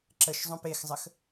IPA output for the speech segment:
ǁ ə ʃ zˤ õ p e x zˤ ə x

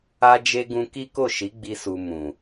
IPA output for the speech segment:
a˦ d͡ʒ e˦ ɡ ũ˧ k i˦ k o˦˨ ʃ i˨˦ ɡ͡b i˦ s u˧ m ũ˨

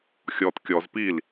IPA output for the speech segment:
xʲ ɔ t kʲ ɔ z p i l

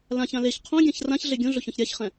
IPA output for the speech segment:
l ã ç ã l e ç qʰ õ ɡʲ ã ç r ã ç ɮ e ɡʲ õ ɮ ʊ ç ɔ̃ ç ɾʲ a ç χ ɛ̃

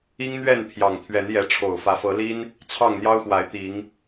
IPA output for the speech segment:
i˦ ŋ n̪ ɥ ɛ˥˨ n pʰ j ɑ˨˩ ŋ t̪ʰ ɥ ɛ˨˦ n j ɛ˨˦ ʈ͡ʂʰ o˨˩ ʊ̯ f ä˨˦ f ɤ˨˦ l i˦ n | t͡sʰ ɑ˥˨ ŋ n̪ j ɑ˦ ʊ̯ x w a˨˦ ɪ̯ t̪ i˨˦ ŋ

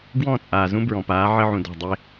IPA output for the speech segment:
ɡ w ɔ̃˦˨ t͡sʼ aː˨ z ũ˦ b ɹ ɔ̃˨ p aː˨˦ ʕ ɘ˦ ʕ ũ˨ d ɔ̤˦˨ dˤ e˦

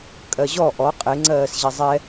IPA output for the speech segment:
kʼ ɜ ʑ ɔ ʔ ɔ qʼ e ŋ͡ǀ ɜː s ʑ i zˤ ɛ

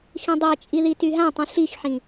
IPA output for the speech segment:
x ĩ dˤ ɛ t͡ʃʼ i ð i t y ɦ ã tˤ ĩ ɬ i x ħ ĩ

